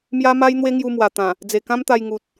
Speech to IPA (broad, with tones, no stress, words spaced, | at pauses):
mja˦ma˦j n̪we˦ŋju˧mwa˨˩ t̪ã˨˩ | d͡ze˨˩kã˦mt̪a˧j ŋu˨t̚